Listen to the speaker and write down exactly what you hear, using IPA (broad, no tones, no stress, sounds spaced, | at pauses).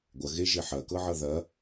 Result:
ɡʷ ɐ ɣ e ʒ e ħ ɐ k ɤ ʕ ʌ ð ɐ